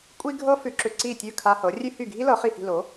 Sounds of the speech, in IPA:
kʷʼi˥ɡʱɤ˥fʉ˧ǁʏ˧ ǀi˥˩tʲʉ˥˩ kʰa˧ hɤ˩˥rʲʉ˥hy˥˩ ɡʱi˥lɤ˩˥χi˧hi̤˧ lo˩˥

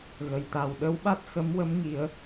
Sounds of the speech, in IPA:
ɣə˨˩jt̪a˨˩w ɗə˧˥wɓa˦˥t̚ xə˧˥mwə˧˥m ŋi˨˩˦ə̯

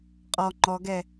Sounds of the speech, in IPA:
qʼɔ ŋ͡ǃɔɡɛ

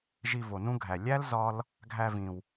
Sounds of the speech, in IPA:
ʒi˧vo˨nũ˦ɡʱæ˨ lʲæ˦l zɒ˦l | ɡʱæ˧vĩ˨w

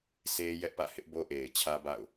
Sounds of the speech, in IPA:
sʰe˦ jɛ˦ʔpä̰˦˨ hɪ˦ʔbo˦ ʔe˨ɪ̯t͡ɕʰä˦ba̰˦˨ʊ̯

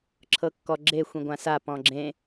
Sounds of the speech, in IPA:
ǁʰɤkːɔɡ͡ǁe xʷĩɡʷãsa pɔ̃ɡ͡ǁẽ

